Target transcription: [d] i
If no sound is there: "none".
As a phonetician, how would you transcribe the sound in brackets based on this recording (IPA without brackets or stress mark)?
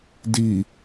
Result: d